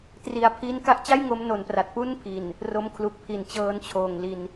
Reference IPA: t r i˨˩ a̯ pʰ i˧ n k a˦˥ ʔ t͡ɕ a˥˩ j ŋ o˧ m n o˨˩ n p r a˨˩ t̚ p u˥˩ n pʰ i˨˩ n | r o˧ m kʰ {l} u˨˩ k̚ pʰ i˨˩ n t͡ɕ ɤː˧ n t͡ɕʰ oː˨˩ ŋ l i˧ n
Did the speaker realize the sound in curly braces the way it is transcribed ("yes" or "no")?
yes